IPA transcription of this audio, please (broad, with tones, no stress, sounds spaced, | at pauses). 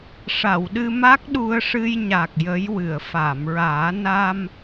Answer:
ʂ a˨˩˨ w ɗ ɨ˧ m a˦˥ k̚ ɗ u˧ ə̯ ʂ ɨ˧ j ɲ a˨˩ k̚ j ə˧˥ j w ɨ˨˩˨ ə̯ f aː˨˩˨ m ɹ aː˨˩˦ n a˧ m